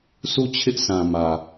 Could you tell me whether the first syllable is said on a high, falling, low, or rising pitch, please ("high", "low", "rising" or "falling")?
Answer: falling